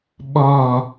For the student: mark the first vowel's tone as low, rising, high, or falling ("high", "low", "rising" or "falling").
low